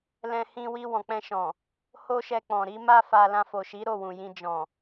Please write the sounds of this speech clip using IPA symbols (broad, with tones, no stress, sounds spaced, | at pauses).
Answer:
l ɛ̃˧ h ĩ˧ w i˧ w ɔ̃˨ k͡p ɛ̃˧ ʃ ɔ̃˨ | h o˦ ʃ ɛ˧ k͡p ɔ̃˨ ɾ i˨˦ m a˦ f a˧ l ã˧ f o˨ ʃ i˨˦ ɾ o˦˨ w ũ˨ j ĩ˧ d͡ʒ ɔ̃˨